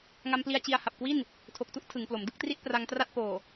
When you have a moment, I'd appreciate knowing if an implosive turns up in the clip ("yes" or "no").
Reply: no